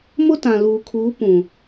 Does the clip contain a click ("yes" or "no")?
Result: no